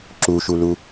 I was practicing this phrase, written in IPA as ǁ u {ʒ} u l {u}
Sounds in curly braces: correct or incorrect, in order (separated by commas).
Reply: incorrect, correct